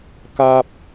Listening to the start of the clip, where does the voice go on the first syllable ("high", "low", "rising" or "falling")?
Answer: high